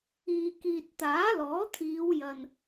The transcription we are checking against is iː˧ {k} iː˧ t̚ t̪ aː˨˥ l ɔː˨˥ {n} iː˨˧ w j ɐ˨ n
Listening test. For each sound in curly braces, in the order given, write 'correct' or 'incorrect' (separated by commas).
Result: correct, incorrect